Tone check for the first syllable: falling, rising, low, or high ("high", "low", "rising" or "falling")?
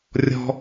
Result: high